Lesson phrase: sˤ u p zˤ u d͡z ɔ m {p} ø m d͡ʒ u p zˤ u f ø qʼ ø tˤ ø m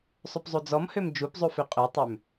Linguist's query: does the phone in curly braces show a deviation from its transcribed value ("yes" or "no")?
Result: yes